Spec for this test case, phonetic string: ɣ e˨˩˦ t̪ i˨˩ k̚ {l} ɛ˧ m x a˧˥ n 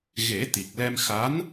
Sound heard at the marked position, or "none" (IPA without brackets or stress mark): l